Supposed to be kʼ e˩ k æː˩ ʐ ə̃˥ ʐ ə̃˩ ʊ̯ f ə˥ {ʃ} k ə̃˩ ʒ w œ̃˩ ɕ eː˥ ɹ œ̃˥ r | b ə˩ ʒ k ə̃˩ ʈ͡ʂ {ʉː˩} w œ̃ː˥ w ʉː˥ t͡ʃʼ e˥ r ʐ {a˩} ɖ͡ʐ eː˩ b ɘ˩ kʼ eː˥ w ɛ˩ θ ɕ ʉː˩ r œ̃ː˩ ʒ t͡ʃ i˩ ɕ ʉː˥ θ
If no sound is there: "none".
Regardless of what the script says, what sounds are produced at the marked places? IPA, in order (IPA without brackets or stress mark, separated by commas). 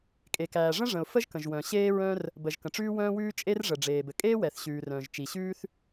ʒ, ʉː˥, ə˩